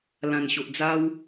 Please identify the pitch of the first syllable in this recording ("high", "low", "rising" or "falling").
low